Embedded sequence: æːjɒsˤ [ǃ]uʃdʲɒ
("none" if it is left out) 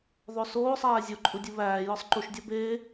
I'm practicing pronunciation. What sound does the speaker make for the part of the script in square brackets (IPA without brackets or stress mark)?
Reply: ǃ